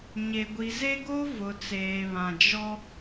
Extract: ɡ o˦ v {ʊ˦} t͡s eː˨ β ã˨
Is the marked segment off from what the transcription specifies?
yes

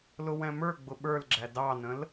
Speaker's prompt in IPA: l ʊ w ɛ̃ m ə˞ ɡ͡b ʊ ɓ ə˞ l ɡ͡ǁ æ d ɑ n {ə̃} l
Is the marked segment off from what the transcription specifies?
no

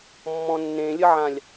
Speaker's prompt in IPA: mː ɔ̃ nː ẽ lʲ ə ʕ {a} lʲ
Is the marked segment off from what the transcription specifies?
yes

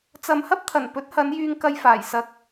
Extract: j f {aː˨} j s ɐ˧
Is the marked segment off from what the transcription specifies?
yes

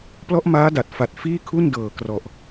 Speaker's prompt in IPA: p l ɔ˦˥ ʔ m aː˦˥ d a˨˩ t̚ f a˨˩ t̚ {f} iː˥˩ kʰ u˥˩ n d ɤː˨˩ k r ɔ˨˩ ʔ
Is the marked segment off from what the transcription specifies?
no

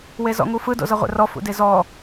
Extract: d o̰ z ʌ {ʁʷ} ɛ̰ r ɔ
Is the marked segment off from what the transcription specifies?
no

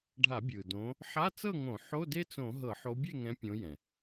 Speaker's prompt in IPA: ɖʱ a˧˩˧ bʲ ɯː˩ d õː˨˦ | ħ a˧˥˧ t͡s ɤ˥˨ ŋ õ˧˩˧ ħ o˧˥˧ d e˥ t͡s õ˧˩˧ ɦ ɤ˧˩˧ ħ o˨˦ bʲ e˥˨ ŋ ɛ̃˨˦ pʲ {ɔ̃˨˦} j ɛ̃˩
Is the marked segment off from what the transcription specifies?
yes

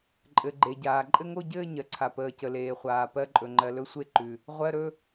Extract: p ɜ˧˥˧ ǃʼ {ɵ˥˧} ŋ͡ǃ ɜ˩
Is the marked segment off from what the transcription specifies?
yes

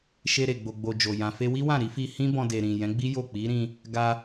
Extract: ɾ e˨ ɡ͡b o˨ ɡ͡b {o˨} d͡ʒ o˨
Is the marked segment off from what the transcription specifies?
no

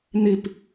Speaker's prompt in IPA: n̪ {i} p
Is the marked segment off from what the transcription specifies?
no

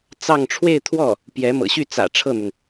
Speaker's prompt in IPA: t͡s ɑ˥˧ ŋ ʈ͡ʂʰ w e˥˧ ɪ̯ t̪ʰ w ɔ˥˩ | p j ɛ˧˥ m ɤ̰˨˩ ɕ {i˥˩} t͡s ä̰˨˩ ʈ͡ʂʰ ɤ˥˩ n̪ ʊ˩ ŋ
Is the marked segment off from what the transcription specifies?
yes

